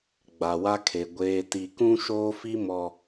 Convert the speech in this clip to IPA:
ɡ͡b a˨ w a˦ kʰ e˨ ɡʷ eː˨ t i˨ k ũ˦ ʃ oː˦ f i˦ m ɔ˨

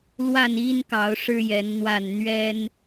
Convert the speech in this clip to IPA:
l w a˥˨ n i˦ n k ɑ˨˦ ʊ̯ ʂ ɻ̩˦ j ɛ˨˦ n n̪ w a˥˨ n n̪ ɥ ɛ˦ n

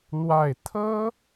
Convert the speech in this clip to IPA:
n̪ w a˥˩ ɪ̯ t̪ʰ ɤ˥

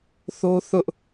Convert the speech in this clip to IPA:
θ o˦ θ ʊ˦ ʔ

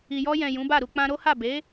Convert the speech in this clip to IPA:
i˨ j ɔ˧ j ɛ̃˨ j ũ˨˦ b a˦˨ ɾ u˧ k͡p ã˧ ɾ o˦ h a˦˨ b e˨˦

